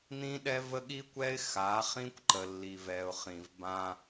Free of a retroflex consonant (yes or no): yes